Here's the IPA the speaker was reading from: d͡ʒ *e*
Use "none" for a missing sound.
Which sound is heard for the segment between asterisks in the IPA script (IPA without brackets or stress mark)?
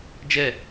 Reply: ɛ